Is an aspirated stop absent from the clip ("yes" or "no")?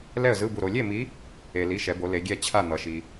no